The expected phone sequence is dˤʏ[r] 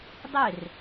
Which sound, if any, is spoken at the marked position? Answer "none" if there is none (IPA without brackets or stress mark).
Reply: r